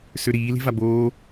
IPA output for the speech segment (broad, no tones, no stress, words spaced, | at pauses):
søɾiː le̤vaboː